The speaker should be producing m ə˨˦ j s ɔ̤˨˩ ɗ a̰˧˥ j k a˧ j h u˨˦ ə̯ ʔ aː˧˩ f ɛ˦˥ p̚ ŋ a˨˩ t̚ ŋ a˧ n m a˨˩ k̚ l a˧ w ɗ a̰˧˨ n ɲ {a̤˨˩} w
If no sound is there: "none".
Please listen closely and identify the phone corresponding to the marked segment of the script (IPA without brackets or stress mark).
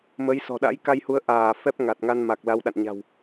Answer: a̤˨˩